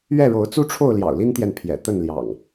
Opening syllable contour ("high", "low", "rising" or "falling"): falling